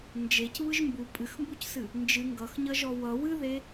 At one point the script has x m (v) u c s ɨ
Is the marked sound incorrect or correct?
incorrect